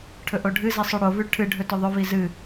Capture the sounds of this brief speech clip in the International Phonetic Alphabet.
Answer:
ʈʰɵʔoɖʱɨzi sˤʉɽovʉ ʈʰɨɖʱɵ tɵðˤɵvi zɨ

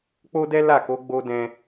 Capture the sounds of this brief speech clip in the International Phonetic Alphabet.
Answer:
k͡po˦dɛ˦ la˦˨ko˨˦ ɡ͡bo˧ dɛ̃˧

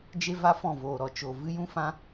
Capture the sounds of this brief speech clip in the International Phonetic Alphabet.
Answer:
d͡ʒe˦va˦fɔ̃˦˨ voː˨ɾɔ˨ t͡ʃo˨ vɨ˦jũ˦fã˦

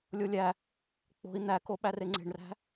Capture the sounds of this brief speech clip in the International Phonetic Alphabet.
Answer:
lʲolʲæ | k͡po̤i̯ n̪æko ɓæreŋ͡ǀe̤ɳræ̤

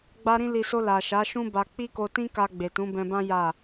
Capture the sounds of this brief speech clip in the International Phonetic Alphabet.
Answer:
ɡ͡ba˧ɾĩ˧li˨so˧ la˨ʃa˨˦ ʃũ˦ ba˧ k͡pi˦ko˧tĩ˦ka˧ ɡ͡be˨tũ˨˦bɛ̃˧bã˦ ja˦˨

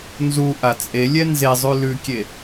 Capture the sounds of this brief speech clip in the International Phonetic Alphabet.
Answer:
nzuʔa t͡sʼelʲɛ nze zˤʉlʉkʲe

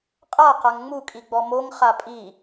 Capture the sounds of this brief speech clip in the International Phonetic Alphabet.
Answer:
qʼaqaŋ ŋ͡mukʼiɡ͡bɔ moŋχa pʼi

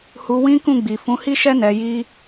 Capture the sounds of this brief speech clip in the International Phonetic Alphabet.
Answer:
hu˧wĩ˦kũ˦˨ɡ͡bi˨ fũ˨˦hi˦ʃɛ˦ nɛ˧ji˦

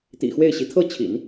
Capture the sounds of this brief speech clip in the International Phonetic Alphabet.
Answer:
t̪ḭ˨˩xwe˥˩ɪ̯ɕi˧˥ t̪ʰɤ˥˩t͡ɕʰḭ˨˩˦n

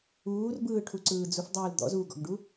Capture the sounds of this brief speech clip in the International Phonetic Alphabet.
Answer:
uːrbɯːʈʰuǀɯː d͡zufdˤuːl d̪ɔ̰zuːɡɔ̰ɡɖu

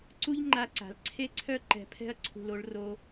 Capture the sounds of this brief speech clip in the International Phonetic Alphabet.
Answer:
ǀu˦ʎŋ͡ǃa˧ǀa̤˨l ǀʰe˦ǀʰœ˦ ǃɛ̤˧pʰɛ̤˦ɐ̯ ǀʰṳ˧l o˦ɭ ro˦

